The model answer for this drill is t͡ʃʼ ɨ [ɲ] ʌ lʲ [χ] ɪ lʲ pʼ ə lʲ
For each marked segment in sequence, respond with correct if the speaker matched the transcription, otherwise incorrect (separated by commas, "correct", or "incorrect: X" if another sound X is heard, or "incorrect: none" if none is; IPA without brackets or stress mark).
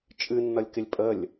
incorrect: nː, incorrect: k